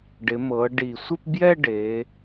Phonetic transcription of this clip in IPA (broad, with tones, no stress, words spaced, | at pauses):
ɖɪ˩˧mɤ˩˧ɖi˨˩sʷɪ˥˧p bjɛ˥˧ ɖe˩˧